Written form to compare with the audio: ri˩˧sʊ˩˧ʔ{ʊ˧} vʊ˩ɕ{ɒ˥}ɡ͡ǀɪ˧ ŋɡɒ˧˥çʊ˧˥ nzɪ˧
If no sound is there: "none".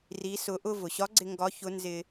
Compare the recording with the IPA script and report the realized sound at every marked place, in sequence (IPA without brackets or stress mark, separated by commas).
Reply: ʊ˧, ɒ˧˥